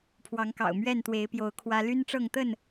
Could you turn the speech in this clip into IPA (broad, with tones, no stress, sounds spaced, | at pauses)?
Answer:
pʰ w ɑ˨˦ ŋ k ɑ̰˨˩ ʊ̯ m ɥ ɛ˥˨ n t̪ w e˨˦ ɪ̯ p j o˨˦ ʊ̯ kʰ w ä˦ l y˦ n ʈ͡ʂ ɤ˥˨ ŋ t̪ ə˥˨ n